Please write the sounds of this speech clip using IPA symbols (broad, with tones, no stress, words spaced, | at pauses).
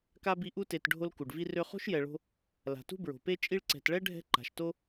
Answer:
ka˥bi˦ ʔu˦te˨t ɖʱo˦l ku˩ɖvi˦ rø˦ χo̤˥ʃjɛ˨ ɭo̤˥ | la̤˩tṳ˥bɹo̤˩pe˥ t͡ʃʼi˦ɭǀɛ̤˨t ɭɛ˥ɖʱɛ̤˦ ǃa̤˩ʃto˥